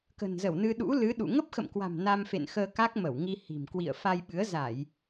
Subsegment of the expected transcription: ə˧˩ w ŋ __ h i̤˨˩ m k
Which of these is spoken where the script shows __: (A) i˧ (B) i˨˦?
A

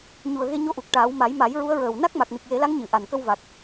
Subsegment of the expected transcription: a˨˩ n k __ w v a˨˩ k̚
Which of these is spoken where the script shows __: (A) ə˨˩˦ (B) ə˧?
B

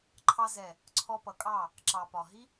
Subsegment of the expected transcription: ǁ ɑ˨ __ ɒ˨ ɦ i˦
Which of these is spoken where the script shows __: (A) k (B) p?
B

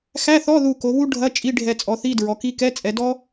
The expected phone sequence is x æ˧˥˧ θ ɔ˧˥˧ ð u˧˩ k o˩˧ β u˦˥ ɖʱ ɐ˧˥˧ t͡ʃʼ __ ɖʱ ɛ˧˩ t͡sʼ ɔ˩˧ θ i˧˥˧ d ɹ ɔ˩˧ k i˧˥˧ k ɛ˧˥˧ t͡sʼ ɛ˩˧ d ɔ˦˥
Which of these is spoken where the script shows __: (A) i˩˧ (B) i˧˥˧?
B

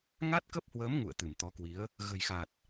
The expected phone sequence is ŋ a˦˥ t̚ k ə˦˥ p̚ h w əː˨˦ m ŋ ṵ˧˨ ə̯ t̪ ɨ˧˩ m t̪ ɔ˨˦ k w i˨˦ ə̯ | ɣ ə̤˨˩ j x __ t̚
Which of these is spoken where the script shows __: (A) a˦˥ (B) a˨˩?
B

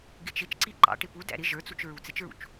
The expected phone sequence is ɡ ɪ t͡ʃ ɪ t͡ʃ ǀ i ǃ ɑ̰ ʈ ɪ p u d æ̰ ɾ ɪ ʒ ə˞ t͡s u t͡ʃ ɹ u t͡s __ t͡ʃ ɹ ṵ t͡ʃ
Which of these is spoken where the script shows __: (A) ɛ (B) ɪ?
B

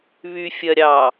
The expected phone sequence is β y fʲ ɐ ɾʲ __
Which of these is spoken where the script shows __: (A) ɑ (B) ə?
A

